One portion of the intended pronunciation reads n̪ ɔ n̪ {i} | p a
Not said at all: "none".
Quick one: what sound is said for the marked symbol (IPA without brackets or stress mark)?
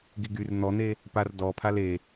e